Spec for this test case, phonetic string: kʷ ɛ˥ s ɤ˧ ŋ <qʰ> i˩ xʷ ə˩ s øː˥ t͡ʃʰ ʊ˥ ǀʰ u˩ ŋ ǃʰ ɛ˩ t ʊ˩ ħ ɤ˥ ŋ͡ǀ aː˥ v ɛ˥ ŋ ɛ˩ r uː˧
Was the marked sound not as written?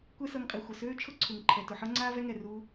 yes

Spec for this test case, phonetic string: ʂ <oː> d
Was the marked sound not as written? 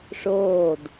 no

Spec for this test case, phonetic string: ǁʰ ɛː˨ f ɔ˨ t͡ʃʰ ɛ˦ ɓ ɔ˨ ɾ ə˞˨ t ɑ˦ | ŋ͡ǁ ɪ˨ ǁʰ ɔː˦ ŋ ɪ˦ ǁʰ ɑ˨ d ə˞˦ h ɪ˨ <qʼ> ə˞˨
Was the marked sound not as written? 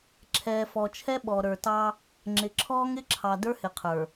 yes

